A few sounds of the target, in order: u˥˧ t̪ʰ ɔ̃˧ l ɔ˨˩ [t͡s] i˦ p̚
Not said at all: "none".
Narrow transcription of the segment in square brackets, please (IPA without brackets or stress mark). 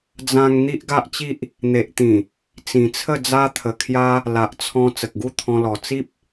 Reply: t͡s